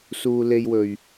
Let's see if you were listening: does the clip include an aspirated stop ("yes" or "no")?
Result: no